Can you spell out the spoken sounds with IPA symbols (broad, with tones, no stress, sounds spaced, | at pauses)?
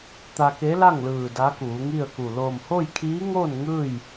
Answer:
t̪ a˧ k e˧˥ l a˥˨ ŋ l ɯː˧˩ d a˧˥ k uː˩˧ ŋ i˥˨ ə̯ k u˧˩ l oː˧˩ m h o˥˨ j kʰ iː˧˥ ŋ oː˥˨ n ŋ ɯː˥˨ j